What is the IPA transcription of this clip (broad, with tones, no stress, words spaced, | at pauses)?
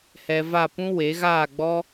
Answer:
hɛ˧va˦˨pũ˦ we˨˦ ɣaː˦˨ɡ͡bɔ˦